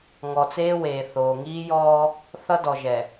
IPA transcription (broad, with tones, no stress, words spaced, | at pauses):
ŋɔ˨t͡seː˦weː˨ θoː˨ŋiː˦jɔː˦ | θʌ˦dɔ˨ʒɛ˨